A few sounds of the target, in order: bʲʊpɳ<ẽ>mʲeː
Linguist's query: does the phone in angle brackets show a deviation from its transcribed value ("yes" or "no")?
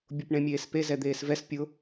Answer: no